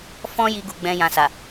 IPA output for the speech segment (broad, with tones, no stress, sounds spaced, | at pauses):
f ɔ̃˦ j i˧ ɡ u˧ ɡ͡b ɛ̃˦ j ã˧ s a˨